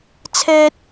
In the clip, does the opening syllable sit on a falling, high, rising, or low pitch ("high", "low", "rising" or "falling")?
high